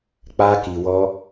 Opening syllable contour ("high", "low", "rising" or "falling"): high